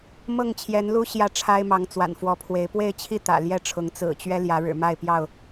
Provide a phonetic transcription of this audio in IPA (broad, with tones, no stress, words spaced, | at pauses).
mɤ˥˨ŋt͡ɕʰjɛ˨˦nlu˦ ɕjä˥˨ʈ͡ʂʰa˦ɪ̯mɑ˨˦ŋ t͡swa̰˨˩nfwɔ˨˦pʰwe˨˦ɪ̯ pwe˥˨ɪ̯t͡ɕʰi˥˨ t̪ä̰˨˩ljɛ˥˨ʈ͡ʂʰʊ˨˦ŋ t͡sɹ̩˨˩t͡ɕɥɛ˦ ljä˨˦ɻɻ̩˨˩ ma˥˨ɪ̯pjɑ˥˨ʊ̯